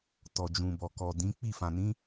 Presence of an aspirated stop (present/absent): absent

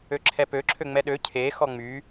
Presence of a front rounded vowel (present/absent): present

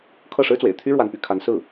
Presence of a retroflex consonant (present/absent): present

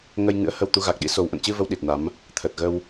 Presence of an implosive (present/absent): present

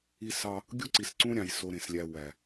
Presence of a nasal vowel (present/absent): present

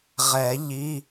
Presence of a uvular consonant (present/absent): present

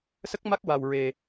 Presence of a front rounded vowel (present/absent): absent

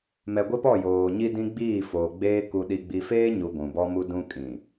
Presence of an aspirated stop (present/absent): absent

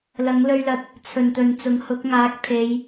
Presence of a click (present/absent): absent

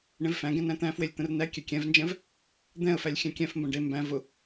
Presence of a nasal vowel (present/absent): present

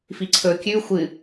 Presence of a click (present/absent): present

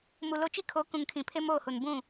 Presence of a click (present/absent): absent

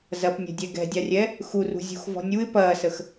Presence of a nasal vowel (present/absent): absent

